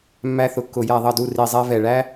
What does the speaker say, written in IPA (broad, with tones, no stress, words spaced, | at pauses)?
mːæ˥θʊ˦˨kːʊ˦˨ jæ˦˨ðˤʌ˦˨du˦˨ ri˦˨zˤɛ˥ vɛ˦˨ ɭæ˥